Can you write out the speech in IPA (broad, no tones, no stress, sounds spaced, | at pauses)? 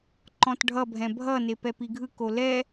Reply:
ǃ ɔ̃ t ɖʱ ʌ bʱ ɛ̃ bʱ ʌ n e p ɛ p i ɡʱ ɯ k o l ɛ